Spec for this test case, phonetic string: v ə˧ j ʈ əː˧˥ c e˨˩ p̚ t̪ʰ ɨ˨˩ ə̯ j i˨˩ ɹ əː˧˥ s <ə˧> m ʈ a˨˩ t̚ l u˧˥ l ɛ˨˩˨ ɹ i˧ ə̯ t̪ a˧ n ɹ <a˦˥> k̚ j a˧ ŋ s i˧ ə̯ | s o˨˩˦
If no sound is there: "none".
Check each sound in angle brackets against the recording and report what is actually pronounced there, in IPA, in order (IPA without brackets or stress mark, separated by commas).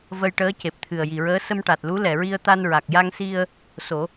ə˧, a˨˩